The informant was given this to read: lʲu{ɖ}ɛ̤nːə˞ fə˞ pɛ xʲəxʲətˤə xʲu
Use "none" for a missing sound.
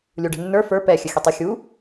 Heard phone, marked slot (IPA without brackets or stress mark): ɖ